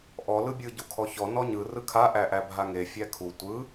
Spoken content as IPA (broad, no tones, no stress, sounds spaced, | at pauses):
ʔ ɔ l ɯ bʲ ɯ ɟ u kʰ ɔ ç ɔ n ɔ ɲ ɯ r ɯ kʰ a ʔ æ ʔ æ bʱ a ŋ e fʲ æ kʰ u tʷ ɯ